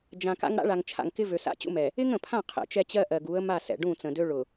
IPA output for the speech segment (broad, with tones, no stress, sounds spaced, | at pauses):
d͡ʒ ã˨ k a̰˦ ŋ ɽ a̰˦ ɭ a˨ ŋ t͡ʃʰ a̰˨ ŋ k ɪ˦ v ø˨ s a̰˦ t͡ɕ ṵ˦ m ɛ˨ | ɪ˦ ŋ ə̃˨ pʰ ã˦˨ qʰ ɛ̰˨ t͡ʃ ɛ˦ t͡ɕ ɜ˦ ʔ ɜ˨ ɡ u˨˦ ə̯ m a˦˨ s ɛ̰˨ ɖ ũ˦˨ t͡s ə̃˨ d ø˦ ɭ ʊ˨